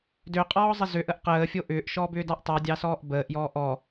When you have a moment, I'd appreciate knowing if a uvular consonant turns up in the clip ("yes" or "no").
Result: yes